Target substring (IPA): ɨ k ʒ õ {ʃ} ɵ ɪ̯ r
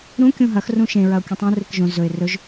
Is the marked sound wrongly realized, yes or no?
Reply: yes